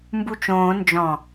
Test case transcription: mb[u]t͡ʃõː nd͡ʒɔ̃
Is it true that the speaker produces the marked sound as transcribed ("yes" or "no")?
yes